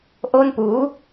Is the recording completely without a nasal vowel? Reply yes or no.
yes